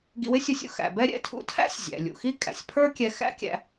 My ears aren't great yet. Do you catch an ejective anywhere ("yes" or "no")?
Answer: yes